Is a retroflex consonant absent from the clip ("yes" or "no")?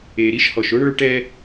no